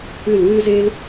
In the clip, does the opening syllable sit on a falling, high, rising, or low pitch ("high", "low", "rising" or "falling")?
falling